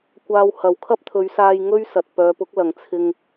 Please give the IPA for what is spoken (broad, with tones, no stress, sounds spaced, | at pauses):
kʷ aː˧ w h ɐ˨ w kʰ ɐ˥ p̚ t̪ʰ ɵ˨˧ ɥ s aː˧ j ŋ ɵ˥ ɥ s ɐ˨ t̚ p œː˨˧ p ʊ˨˥ k̚ l ɐ˨ ŋ t͡sʰ ɪ˧ ŋ